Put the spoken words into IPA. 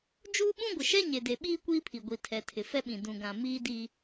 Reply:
d͡ʒ uː˦ ɓ ũ˦ ɡʷ ɪ˨ ʃ ɛ˦ ɲ e˨ d e˨ ɓ iː˦ kʷ iː˦ pʰ i˨ ɡʷ i˨ tʰ ɛ˨ tʰ ɪ˨ f ɛ˦ ɓ ĩ˨ d ũ˨ ɡ ã˨ m iː˦ d i˦

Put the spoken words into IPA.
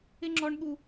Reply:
ɪ˦ ŋ͡ǁ ɔ˦ ɳ ɠ u˦

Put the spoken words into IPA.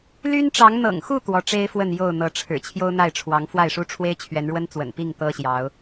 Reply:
l y˦ n ʈ͡ʂ ɑ˨˦ ŋ n̪ ɤ̰˨˩ ŋ x u˥˨ t̪ w ɔ˨˦ ʈ͡ʂ e˦ ɪ̯ f w ə˥˨ n j o˥˨ ʊ̯ n̪ ɤ˨˦ ʈ͡ʂʰ ɻ̩˨˩ t͡ɕʰ j o˦ ʊ̯ n̪ a˥˨ ɪ̯ ʈ͡ʂʰ w ɑ˨˦ ŋ f w a˥˨ ɪ̯ ʂ u˦ ʈ͡ʂʰ w e˦ ɪ̯ t͡ɕʰ ɥ ɛ˨˦ n ɻ w ə˦ n t͡s w ə̰˨˩ n p i˥˨ ŋ t̪ ɤ˦ ɕ j ɑ˨˦ ʊ̯

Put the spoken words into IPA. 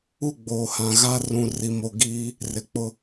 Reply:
u˦˨ ɡ͡b oː˨ h ã˨ ɣ a˦ r ũ˨ r i˨ m o˨ ɡ iː˦ | r ɪ˨ k͡p ʊ˦

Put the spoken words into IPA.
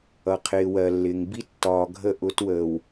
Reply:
ʌ˨ qʰ ɪː˨ w ɜ˨ lː ɪː˨ ŋ b i˦ tː ɒː˨ ɡʱ ə˦ ʔ ʊ˨˦ t w ə˨ w

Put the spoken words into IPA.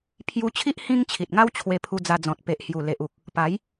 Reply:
pʰ j u˧ t͡ɕʰ i˦ ʔ h ĩ˧ ŋ t͡ɕʰ i˨ t̚ ŋ a˦ w t͡ɕʰ w e˧ pʰ u˧ d͡z a˧ d͡z ɔ̃˨ t̚ p e˨ ʔ h j u˨˩ l e˨ ʔ u˨ k̚ | p a˨˦ j

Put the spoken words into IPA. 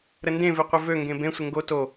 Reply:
ɾ ə n d ẽ v e qʷ ɪ v ø ŋ ɡ ẽ b ẽ sʷ ɪ ŋ ɡ o t o

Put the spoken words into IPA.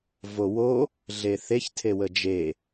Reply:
v o w o | ɮ e θ e ç tʰ e w ə d͡ʒ e

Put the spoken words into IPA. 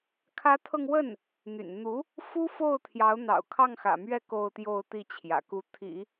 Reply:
kʰ ä˧˥ t̪ʰ ɤ˧ ŋ w ə˥˩ n | n̪ y̰˨˩ n n̪ u˧˥ | f u˥ f o˥˩ ʊ̯ t̪ʰ j ɑ˧˥ ʊ̯ n̪ ɑ̰˨˩ ʊ̯ kʰ ɑ˥˩ ŋ x ä̰˨˩ m ɥ ɛ˥˧ k o˥˧ ʊ̯ t̪ j o˥˧ ʊ̯ t̪ i˥˩ t͡ɕʰ j ä̰˨˩ k u˧˥ t̪ʰ ḭ˨˩˦

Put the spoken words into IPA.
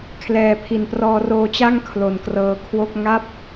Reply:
kʰ l ɛː˨˩ pʰ i˨˩ n p r ɔː˧ r oː˧ t͡ɕ a˥˩ ŋ kʰ l o˨˩ n k r ɤː˧ kʰ w o˥˩ k̚ ŋ a˥˩ p̚

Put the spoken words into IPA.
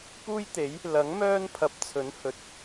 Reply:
p uː˥ j t̪ e˨˥ j | l ɐ˨˥ ŋ m œː˥ n pʰ ɐ˨˥ p̚ t͡sʰ ɵ˨˥ n h ɵ˧ t̚

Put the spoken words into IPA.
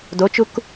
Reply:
d o t͡ʃ u k

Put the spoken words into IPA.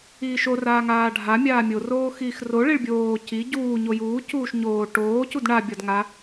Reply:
iː ʃ o r aː ŋ aː ɖʱ a mʲ aː mʲ o r oː x iː x r o ɭ i ɭ bʲ oː c i ɟ uː ɲ o j uː c uː ʃ ɲ oː ʈ oː c u d ɳ a bʲ ɒ d ŋ a

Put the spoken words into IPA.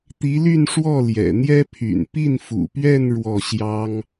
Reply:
t̪ i˧˥ l y˥˧ n ʂ w ɔ˥˩ l j ɛ̰˨˩ n̪ j ɛ˥ pʰ y̰˨˩ n p i˥˩ n f ṵ˨˩ p ɥ ɛ˥˧ n ɻ w ɔ˥˩ ɕ j ɑ˥ ŋ

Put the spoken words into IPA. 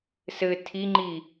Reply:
s ɘ tʰ i ŋ͡ǃ i

